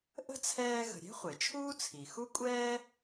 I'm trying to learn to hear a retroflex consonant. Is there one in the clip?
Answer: no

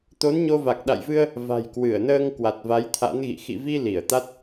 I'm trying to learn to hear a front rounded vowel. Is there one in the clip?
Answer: no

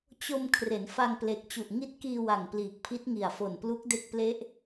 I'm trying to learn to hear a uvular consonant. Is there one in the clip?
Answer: no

